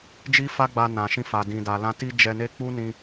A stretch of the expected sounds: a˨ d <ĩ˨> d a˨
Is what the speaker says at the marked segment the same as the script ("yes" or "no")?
yes